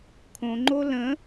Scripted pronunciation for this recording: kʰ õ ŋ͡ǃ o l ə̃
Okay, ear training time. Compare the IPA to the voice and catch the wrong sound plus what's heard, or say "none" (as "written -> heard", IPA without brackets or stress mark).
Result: none